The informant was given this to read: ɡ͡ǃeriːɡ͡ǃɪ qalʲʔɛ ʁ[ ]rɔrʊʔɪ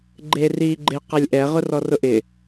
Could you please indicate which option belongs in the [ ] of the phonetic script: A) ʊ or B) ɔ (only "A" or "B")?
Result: A